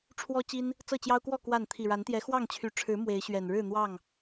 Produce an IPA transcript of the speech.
ʈ͡ʂʰ w ɔ˦ t͡ɕ i˦ n | t͡s ɤ˥˨ t͡ɕ j ɑ˦ ʊ̯ k w ɔ˥˨ k w a˥˨ n t̪ʰ i˨˩ ɻ a˨˦ n t̪ j ɛ˨˦ x w ɑ˥˨ ŋ t͡ɕʰ y˨˦ ʈ͡ʂʰ ɻ̩˨˦ m w e˨˦ ɪ̯ ɕ ɥ ɛ˨˩ n ɻ ɻ̩˥˨ n̪ w ɑ˥˨ ŋ

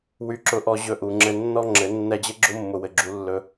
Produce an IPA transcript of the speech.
w y˦ ǁ ʊ˦ ʔ ɔ˦ ʑ ɵ˧ ʔ u˨ ŋ͡ǁ ɘ˧ nː ɔ˦ ŋ͡ǁ ɘ˨˦ nː ɛ˧ d͡ʑ ɘ˦ ɡ͡ǁ ʊ˦ mː ʊ˨ w ɘ˨ ɡ͡ǁ u˨˦ lː ɵ˧

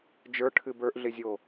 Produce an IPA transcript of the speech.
d͡ʒ ə˞ ʈʰ ɨ b ə˞ ʔ ɮ ɪ zʲ o

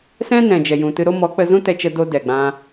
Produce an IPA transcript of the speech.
s ɛ̃˦ n ɛ̃˨ d͡ʒ ɛ˨ j ũ˨ t ɨ˧ ɾ o˦ m ɔ˨˦ k͡p ə˧ z ũ˦ t ɛ˧ t͡ʃ ə˧ d o˧ d ɛ˨ ɡ͡b ã˧

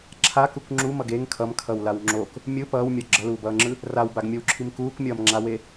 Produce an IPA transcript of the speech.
ǁʰ a k u k ŋ͡ǁ u m ʌ ɡ e ŋ kʰ ʌ m kʰ ʌ w l a w ŋ͡ǁ o k | mʲ ɯ p ʌː w mʲ ʌ ɡ͡ǁ ʌ l uː b ʌː ŋ͡ǁ ɯ | r a w b a ɡ mʲ o w ǁʰ i m k uː k mʲ ʌː m ŋ͡ǁ a w e

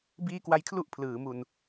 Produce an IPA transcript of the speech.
b iː˦˥ k w a˧ j kʰ l u˦˥ ʔ pʰ l ɯː˩˦ m u˨˩ n

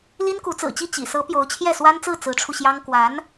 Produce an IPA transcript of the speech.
l i˥ n k u˧˥ t͡s ɹ̩˨˩ t͡ɕ i˥˩ t͡ɕ ḭ˨˩ s ɤ˧˥ p j o˧˥ ʊ̯ t͡ɕʰ j ɛ˥˩ s w a˥ n t͡s ɹ̩˥˩ t͡s ɹ̩˧˥ ʈ͡ʂʰ u˧ ɕ j ɑ˥ ŋ k w a˧˥ n

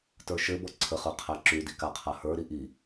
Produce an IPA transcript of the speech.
t ə˞ ʃ ɘ b ɔ ǀʰ ə χ ə˞ qʰ æ ǁ y d i k a qʰ a h ə˞ ɾ i ʔ i

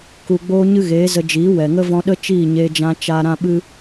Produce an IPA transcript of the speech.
k u˨ ɡ͡b oː˧ ɲ ɨ˧ ɣ eː˨˦ z ə˧ d͡ʒ iː˨˦ w ɛ˨ ŋ ə˦ v ɔ̃˧ ɗ ə˦ t͡ʃ iː˦˨ ɲ eː˧ d͡ʒ ã˧ t͡ʃ aː˧ ɾ ã˦ ɓ ɨ˦

